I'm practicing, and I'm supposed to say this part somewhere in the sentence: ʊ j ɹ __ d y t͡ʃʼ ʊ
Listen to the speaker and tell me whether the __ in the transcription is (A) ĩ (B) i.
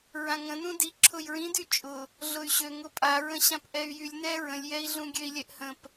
A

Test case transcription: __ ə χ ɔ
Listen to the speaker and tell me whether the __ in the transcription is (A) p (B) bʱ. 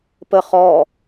A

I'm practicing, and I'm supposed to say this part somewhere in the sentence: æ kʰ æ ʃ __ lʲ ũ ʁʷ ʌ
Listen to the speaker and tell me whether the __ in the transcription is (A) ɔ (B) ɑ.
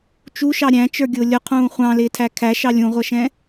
B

